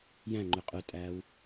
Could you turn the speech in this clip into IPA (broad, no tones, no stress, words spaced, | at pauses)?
jæ̃ ŋ͡ǃʉqʼʉtʼæːw